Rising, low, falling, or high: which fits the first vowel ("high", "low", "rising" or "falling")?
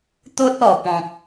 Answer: high